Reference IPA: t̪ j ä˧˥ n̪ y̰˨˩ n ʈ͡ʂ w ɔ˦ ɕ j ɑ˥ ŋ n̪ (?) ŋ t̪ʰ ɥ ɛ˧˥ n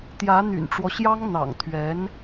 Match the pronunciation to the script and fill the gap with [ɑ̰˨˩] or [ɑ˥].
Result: ɑ̰˨˩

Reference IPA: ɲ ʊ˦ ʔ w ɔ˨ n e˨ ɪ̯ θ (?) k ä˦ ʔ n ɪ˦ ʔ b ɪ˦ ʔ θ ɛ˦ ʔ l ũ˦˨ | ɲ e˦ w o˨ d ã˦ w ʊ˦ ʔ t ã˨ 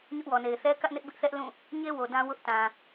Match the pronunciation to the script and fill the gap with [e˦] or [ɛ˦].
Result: ɛ˦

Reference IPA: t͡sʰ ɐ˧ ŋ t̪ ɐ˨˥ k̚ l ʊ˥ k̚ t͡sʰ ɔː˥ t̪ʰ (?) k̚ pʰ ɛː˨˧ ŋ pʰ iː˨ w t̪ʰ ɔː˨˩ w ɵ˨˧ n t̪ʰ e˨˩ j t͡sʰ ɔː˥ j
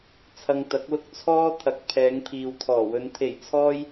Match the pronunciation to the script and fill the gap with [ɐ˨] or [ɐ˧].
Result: ɐ˨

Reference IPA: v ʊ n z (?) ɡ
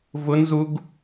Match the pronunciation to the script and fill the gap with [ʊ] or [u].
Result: u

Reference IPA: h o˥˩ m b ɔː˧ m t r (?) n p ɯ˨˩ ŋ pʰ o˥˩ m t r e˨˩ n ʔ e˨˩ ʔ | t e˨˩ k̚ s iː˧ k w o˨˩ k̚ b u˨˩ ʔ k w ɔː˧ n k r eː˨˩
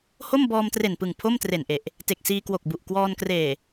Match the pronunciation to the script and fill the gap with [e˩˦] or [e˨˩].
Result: e˨˩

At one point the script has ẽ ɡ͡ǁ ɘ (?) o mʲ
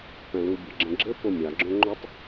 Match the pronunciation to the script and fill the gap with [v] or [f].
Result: f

